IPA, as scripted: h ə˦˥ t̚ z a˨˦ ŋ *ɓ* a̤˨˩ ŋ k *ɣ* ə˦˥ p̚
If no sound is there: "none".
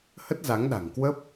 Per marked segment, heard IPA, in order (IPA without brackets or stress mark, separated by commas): ɗ, w